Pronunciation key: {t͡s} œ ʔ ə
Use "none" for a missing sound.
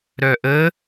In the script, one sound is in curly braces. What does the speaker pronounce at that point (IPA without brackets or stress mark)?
ɾ